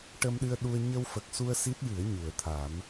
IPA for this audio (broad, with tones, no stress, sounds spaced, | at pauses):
ʈ ə˧ m ɗ ɨ˧ ə̯ ɗ u˧ ə̯ ɲ ə˧ w f ə˨˩ k̚ s u˧ ə̯ s i˦˥ t̚ j ɨ˨˩˦ ə̯ ɲ u˨˩˨ ə̯ t̪ʰ a˨˩˦ m